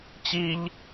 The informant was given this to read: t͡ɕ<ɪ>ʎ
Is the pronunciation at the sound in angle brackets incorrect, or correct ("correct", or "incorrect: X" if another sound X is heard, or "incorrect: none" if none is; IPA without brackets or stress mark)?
incorrect: i